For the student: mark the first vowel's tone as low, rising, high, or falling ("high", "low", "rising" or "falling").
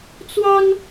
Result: high